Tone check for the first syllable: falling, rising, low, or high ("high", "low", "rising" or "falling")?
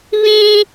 high